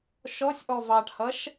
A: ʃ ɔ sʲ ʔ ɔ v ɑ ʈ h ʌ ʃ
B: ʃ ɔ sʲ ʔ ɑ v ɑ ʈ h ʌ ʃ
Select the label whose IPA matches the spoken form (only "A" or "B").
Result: A